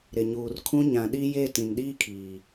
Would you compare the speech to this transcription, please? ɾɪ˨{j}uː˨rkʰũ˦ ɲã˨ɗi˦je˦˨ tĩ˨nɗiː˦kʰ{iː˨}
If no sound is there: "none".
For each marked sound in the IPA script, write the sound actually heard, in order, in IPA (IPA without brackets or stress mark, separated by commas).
ɲ, iː˨